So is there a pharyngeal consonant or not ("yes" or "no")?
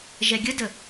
no